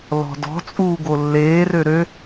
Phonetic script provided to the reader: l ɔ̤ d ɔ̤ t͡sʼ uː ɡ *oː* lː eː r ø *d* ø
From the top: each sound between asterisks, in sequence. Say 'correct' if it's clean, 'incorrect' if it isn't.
incorrect: o, incorrect: ɾ

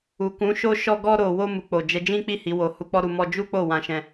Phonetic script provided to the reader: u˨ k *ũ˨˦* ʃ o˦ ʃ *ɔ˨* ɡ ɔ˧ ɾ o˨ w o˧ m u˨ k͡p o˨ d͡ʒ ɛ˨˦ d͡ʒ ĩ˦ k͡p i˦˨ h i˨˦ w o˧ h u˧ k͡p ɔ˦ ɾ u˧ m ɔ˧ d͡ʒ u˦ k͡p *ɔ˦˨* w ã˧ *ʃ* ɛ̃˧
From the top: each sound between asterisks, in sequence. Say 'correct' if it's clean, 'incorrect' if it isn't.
correct, incorrect: ɔ˧, incorrect: o˦˨, correct

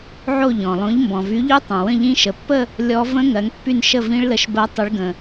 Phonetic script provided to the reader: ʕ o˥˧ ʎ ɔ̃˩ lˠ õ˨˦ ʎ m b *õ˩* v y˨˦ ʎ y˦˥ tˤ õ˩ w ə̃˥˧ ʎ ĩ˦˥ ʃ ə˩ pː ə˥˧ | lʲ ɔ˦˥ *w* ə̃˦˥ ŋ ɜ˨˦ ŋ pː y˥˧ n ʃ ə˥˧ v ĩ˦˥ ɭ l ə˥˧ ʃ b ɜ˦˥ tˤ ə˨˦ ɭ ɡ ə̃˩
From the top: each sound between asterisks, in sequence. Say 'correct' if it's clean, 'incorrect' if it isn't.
incorrect: ɔ̃˩, incorrect: v

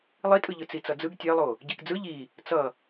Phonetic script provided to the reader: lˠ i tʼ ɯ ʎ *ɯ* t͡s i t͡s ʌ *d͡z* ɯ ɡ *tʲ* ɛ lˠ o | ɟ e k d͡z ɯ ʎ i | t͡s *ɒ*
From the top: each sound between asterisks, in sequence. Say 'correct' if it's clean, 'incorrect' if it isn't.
correct, correct, correct, incorrect: ʌ

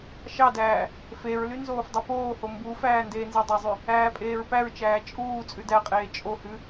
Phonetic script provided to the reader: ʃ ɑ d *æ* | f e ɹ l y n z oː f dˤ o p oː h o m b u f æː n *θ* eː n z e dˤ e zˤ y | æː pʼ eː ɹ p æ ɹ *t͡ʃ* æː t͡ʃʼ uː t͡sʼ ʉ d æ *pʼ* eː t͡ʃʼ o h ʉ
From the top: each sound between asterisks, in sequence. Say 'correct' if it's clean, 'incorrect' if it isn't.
incorrect: æː, incorrect: d, correct, incorrect: qʼ

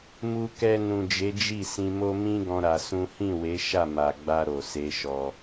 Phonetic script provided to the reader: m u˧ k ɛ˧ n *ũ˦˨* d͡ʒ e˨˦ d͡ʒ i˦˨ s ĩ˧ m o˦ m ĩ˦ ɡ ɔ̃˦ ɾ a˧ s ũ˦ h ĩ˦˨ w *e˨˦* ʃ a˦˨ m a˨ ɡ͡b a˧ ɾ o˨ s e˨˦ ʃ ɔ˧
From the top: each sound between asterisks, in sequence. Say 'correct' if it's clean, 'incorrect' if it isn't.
incorrect: ũ˨, correct

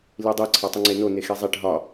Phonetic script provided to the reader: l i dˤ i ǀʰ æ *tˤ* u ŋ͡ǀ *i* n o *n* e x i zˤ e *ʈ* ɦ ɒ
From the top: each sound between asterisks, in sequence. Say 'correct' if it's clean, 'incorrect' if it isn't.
correct, incorrect: e, correct, correct

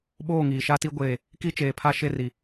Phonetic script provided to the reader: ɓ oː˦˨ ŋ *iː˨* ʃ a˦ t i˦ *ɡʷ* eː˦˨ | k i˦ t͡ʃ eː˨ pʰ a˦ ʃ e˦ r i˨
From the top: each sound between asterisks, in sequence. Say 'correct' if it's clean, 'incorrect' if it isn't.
correct, correct

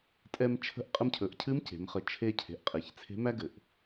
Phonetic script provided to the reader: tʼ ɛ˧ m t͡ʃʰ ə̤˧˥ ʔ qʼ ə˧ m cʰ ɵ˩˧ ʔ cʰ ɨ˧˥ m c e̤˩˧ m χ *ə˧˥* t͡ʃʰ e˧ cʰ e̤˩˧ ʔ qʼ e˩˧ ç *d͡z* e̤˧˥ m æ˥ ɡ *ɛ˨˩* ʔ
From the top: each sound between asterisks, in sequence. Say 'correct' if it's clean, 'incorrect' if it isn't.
incorrect: ə˨˩, incorrect: t͡sʰ, incorrect: ɘ˨˩

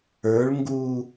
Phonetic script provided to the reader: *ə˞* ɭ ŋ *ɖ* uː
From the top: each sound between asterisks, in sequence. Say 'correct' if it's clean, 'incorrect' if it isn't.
correct, incorrect: ɡ

